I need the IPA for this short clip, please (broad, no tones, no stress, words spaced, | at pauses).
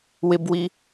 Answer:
wɪbwi